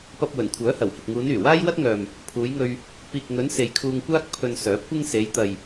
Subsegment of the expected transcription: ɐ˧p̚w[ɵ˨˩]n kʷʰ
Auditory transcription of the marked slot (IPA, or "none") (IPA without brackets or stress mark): ɵ˨˩